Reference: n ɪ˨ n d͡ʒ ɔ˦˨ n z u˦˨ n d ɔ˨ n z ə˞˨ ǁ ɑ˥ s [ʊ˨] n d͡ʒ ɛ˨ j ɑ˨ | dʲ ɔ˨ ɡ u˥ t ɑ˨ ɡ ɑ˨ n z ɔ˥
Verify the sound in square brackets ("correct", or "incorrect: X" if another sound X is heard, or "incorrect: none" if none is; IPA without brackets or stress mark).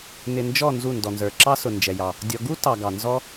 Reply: correct